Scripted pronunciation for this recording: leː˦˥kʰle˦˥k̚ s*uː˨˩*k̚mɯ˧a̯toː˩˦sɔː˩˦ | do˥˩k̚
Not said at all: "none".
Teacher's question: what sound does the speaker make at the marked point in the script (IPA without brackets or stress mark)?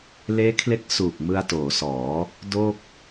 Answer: uː˨˩